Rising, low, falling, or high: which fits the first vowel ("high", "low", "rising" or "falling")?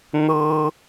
high